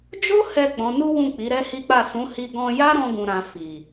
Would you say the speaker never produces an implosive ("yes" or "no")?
yes